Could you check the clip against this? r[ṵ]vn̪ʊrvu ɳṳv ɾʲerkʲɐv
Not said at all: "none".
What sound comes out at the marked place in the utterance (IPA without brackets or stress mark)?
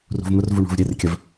ṳ